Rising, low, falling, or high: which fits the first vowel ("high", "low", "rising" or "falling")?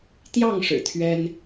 falling